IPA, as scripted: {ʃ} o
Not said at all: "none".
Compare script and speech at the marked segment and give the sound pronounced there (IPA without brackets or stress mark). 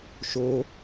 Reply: ʃ